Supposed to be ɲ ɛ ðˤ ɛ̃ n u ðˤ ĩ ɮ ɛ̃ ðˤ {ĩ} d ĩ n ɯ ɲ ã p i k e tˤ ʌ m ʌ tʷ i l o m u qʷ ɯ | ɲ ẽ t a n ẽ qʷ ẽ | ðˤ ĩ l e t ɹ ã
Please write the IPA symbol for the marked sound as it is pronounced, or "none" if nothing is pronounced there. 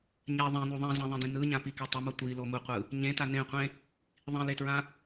ẽ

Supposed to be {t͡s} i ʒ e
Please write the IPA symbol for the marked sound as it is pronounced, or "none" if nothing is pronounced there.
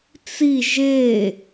t͡s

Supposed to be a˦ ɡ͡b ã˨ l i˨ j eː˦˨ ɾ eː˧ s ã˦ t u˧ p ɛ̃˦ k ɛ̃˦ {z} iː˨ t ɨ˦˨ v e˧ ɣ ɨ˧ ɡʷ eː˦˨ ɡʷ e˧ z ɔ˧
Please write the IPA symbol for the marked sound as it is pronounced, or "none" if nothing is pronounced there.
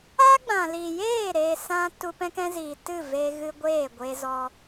z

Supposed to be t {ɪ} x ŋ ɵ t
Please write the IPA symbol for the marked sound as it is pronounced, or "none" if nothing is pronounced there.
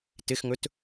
ɪ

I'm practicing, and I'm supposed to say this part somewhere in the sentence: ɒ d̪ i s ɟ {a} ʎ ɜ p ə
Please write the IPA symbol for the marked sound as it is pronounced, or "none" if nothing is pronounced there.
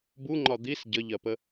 ə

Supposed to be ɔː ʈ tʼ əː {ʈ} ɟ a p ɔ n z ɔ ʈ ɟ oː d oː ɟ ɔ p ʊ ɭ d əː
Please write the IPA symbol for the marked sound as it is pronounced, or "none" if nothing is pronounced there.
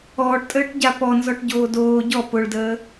ʈ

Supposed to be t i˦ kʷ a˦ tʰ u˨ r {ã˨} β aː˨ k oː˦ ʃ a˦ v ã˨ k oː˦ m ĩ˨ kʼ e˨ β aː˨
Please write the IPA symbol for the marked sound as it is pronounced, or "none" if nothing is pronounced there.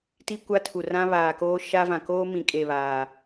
ã˦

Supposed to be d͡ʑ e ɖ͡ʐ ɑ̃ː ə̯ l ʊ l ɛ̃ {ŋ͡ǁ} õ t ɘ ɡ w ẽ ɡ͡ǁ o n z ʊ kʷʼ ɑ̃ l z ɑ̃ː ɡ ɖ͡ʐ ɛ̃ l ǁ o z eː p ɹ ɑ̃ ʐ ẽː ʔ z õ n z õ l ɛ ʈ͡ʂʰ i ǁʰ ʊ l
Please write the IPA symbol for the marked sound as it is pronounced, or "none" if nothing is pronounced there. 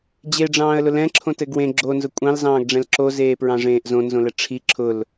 ǁʰ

